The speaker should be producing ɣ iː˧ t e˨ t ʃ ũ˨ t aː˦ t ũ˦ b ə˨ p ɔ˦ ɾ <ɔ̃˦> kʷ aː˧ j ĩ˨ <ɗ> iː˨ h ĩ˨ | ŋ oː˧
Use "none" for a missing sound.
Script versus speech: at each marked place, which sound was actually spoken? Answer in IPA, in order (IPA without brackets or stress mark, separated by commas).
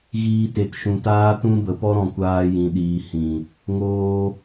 ɔ̃˧, ɗ